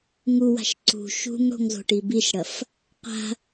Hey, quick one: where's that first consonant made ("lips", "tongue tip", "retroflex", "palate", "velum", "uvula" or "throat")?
velum